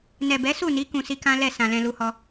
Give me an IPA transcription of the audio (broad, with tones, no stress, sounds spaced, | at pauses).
n ɛ˨ b ɛ˨˦ s u˦˨ n i˨˦ k ũ˧ s i˦ k ã˦ l ɛ˦˨ s ã˨ l ɛ̃˧ l u˦ h ɔ˦